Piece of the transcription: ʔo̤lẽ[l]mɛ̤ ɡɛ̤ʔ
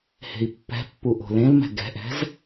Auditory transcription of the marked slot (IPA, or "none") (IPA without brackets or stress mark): l